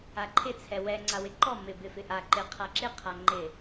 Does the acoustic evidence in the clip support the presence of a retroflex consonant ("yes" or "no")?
no